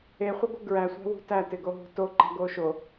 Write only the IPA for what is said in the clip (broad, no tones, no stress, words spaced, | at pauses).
eχʷɪɡʷɪ ɡɹæsʷæ̤wṳ tætɪɡoɦṳ toǃæ̤ɡo ʃo